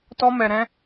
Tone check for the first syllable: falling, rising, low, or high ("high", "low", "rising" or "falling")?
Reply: high